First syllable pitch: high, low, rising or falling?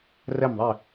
falling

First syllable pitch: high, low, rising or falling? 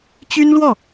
high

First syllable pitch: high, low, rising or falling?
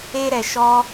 high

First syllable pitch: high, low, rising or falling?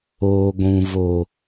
low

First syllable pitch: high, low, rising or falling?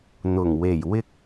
low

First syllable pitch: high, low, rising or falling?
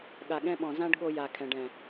low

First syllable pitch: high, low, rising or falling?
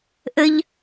high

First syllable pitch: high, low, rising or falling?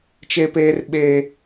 high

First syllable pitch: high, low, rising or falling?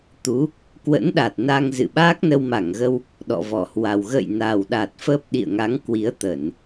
rising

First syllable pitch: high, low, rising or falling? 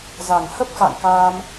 low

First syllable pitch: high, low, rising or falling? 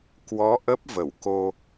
rising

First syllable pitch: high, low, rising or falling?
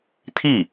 falling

